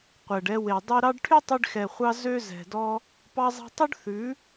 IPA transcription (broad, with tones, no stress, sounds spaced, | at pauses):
qʷ ɛ˨ ɖ ɛ˧ w e˨ dˤ y˧ ɾ ɑ˦ ɖ ʈʰ y˦ tˤ y˧ ɖ x ɛ˨ χʷ ɑ˧ z ø˧ z ɛ̤˨ d ɔ˦ | p ɑ˧ zˤ ɛ̤˧ tˤ ø˦ ɖ θ ʉ˨˦